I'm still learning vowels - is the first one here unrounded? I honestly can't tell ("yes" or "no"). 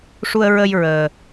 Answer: no